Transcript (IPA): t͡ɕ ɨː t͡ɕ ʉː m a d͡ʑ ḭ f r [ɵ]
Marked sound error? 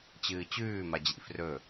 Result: no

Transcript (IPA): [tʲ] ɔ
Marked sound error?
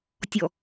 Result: no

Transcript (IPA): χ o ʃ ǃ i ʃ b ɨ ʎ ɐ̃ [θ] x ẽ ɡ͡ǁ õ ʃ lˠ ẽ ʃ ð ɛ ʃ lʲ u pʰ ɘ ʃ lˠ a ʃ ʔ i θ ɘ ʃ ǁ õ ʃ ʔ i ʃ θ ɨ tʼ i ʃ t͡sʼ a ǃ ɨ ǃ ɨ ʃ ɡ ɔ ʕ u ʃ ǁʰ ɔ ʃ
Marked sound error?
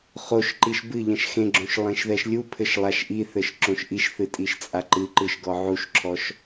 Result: yes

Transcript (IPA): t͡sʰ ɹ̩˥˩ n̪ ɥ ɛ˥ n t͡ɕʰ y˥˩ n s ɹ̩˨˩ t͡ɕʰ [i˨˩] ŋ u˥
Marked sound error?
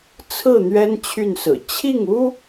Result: yes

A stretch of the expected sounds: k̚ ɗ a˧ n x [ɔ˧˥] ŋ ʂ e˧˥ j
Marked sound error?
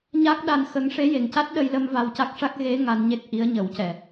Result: yes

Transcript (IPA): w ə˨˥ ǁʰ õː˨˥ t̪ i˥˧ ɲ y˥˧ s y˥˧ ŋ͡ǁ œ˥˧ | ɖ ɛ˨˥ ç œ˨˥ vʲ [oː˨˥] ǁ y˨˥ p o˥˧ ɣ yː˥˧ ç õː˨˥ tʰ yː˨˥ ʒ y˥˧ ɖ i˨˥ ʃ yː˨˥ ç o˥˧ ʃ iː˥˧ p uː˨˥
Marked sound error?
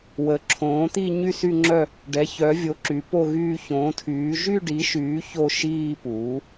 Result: yes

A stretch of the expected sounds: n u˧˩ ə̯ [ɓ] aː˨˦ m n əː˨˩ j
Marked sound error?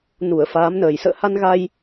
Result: yes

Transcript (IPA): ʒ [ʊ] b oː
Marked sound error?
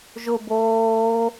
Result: no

